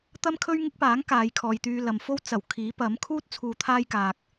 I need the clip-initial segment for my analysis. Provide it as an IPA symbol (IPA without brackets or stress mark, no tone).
t̪